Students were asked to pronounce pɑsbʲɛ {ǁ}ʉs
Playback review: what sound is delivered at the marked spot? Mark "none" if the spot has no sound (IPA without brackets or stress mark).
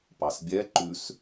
ǃ